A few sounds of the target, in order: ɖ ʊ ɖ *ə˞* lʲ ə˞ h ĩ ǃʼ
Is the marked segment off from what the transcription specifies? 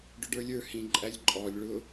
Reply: no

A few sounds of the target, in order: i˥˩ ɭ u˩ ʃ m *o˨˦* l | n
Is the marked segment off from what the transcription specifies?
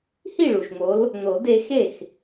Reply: no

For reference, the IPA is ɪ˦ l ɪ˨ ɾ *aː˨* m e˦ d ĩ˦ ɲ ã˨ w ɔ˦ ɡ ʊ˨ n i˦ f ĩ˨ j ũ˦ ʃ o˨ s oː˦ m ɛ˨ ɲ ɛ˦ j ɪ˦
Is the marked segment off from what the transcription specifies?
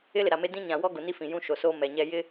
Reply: yes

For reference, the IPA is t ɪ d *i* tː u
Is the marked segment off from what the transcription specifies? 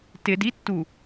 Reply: no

